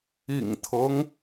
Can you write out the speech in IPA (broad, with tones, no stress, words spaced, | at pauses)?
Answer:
ḭ˨˩ŋt̪ʰɤ˦ŋ